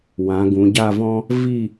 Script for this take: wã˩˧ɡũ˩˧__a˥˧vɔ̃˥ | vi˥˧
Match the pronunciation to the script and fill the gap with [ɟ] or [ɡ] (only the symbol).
ɟ